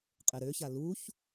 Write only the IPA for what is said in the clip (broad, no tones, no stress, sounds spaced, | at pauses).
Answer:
qʼ e ɾ ø ç a l u ç